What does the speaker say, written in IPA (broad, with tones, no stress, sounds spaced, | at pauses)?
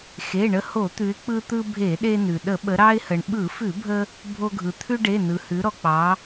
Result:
x e˩˧˩ ɳ ə˧ h o˧˩˧ t̪ ʉ˩˧ ɪ̯ k͡p ɯ˧ t̪ ɯ˧ bʱ e˧˩˧ ɗ e˧ n ʉ˩ ɗ ə˧˩˧ ɓ ə˩˧ ɾ ɑ˧ ɪ̯ h ə˩ ɳ ɓ ɯ˧˩˧ f ʉ˧˩˧ bʱ ə˧ | bʱ o˧ ɡʱ ɯ˩ t̪ʰ ʉ˧ ɖ e˩˧˩ n ɯ˩ h ʉ˩˧ ɾ ɔ˩ k͡p ɑ˩˧